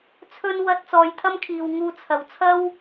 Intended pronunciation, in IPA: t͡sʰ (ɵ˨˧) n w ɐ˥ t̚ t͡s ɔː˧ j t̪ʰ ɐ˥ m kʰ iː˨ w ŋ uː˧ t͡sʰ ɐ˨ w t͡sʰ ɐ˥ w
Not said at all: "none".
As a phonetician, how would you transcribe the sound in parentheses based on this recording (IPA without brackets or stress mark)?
ɵ˥